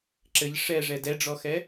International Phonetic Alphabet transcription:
ǁ ɘ ʎ ʂ ɛ ʐ ɛ d ɛ ɖ͡ʐ ɔ x ɛ

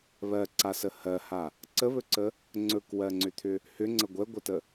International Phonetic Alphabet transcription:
β ɜ ǀ a s ə h ɜ h a | ǀ ə β ɵ ǀ ə | ŋ͡ǀ ɵ k w ɜ ŋ͡ǀ ʏ t̪ʰ ʏ | h ʏ ŋ͡ǀ ə ɡʷ ɛ ɡʷ æ t ə

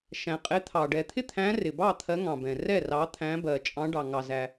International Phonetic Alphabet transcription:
ʃ æ̃˩ qʼ ɪ˨˦ t̪ʰ ɑ˩ ɖ ɛ˩ t̪ʰ ɪ˥˩ t̪ʰ æ̃˨˦ r ɪ˩ b ɑ˥˩ t̪ʰ ɜ˨˦ ŋ ɑ̃˩ b ɛ̃˩ r ɛ˥˩ r ɑ˨˦ t̪ʰ æ̃˨˦ b ɜ˩ t͡ʃʼ ɑ̃˨˦ ɖ ɑ˩ ŋ ɑ˩ z æ˩

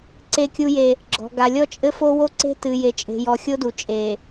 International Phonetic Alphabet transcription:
ǀ e˦ kʲ u˦ j e˦ | ɡ͡ǁ ɔ̤˨ ɡ a˨ lʲ ɔ˦ t͡ʃʼ ɘ˦ f o˦ w o˦ ǀ e̤˦ t ɨ˨ j e˨ t͡ʃʼ e̤˨ j ɔ˨ xʲ o˦ d u˨ t͡ʃʼ e˨

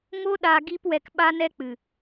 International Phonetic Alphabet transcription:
ŋ o˦ ɗ aː˧ ɡ iː˦ p w ɛ˧ k ɓ a˧ n ɛ˧ k͡p ɨ˨

